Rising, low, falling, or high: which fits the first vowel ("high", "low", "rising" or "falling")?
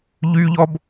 high